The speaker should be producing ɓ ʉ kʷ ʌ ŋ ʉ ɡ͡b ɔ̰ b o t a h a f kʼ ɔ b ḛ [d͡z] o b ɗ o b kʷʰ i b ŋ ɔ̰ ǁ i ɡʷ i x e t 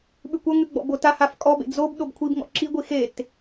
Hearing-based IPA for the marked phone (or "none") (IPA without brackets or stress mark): d͡z